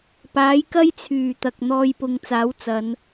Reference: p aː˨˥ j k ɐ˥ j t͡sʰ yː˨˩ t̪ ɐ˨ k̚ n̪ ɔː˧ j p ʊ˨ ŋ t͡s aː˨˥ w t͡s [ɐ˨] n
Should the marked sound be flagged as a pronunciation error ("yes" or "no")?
yes